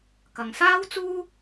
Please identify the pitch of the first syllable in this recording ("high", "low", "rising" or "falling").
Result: low